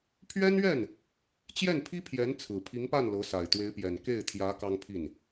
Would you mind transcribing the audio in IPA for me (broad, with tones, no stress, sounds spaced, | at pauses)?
pʰ ɥ ɛ˥ n ɥ ɛ˥˩ n | t͡ɕ j ɛ˥˩ n pʰ i˥ pʰ j ɛ˧˥ n t͡sʰ ɹ̩˨˩ pʰ i˧˥ ŋ p a˥˩ n l ɤ˧˥ s a˨˩ ɪ̯ t̪ w e˧˥ ɪ̯ p j ɛ˨˩ n k e˥˩ ɪ̯ t̪ʰ j ä˧˥ k ɑ˥ ŋ pʰ i˥˩ n